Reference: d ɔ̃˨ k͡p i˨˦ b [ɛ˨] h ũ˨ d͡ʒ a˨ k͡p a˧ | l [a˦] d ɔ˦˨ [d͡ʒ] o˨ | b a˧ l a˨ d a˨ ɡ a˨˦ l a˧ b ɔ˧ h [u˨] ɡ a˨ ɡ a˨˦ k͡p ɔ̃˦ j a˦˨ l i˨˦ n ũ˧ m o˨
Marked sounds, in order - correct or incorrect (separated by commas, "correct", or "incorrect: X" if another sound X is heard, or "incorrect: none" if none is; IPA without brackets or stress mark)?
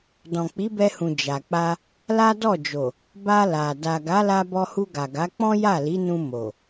incorrect: ɛ˧, correct, correct, incorrect: u˧